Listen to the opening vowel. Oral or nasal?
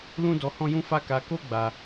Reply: nasal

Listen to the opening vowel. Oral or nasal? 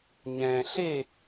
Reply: nasal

